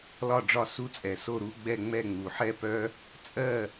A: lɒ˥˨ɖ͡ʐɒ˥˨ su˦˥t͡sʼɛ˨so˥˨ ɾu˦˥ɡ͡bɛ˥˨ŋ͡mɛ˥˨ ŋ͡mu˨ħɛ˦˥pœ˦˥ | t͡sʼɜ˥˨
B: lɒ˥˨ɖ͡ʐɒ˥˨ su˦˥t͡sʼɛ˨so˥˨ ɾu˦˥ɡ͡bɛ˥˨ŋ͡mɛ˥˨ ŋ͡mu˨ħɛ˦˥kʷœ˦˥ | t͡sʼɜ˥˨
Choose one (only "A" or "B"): A